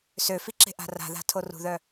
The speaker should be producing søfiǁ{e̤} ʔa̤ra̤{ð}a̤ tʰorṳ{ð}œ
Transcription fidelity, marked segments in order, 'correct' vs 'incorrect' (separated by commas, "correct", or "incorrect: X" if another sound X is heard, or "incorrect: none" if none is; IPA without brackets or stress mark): correct, correct, correct